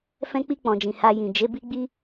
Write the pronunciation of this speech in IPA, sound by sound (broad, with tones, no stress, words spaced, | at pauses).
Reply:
fɛ̃˧k͡pi˧k͡pɔ̃˨d͡ʒĩ˨ ha˧jĩ˨ d͡ʒe˨˦ bi˦ɡ͡bi˦